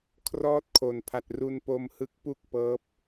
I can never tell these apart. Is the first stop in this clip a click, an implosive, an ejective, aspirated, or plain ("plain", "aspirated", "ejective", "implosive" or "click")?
aspirated